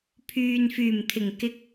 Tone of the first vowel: low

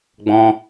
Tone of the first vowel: high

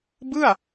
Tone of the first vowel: falling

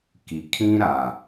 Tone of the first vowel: low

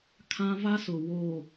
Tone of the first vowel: high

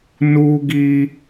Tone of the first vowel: high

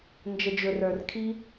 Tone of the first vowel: low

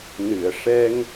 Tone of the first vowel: low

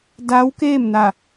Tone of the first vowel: rising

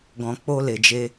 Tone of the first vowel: low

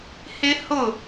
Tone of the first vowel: high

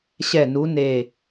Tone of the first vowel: falling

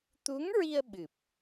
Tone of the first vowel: rising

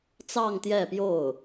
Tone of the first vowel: falling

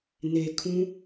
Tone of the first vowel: low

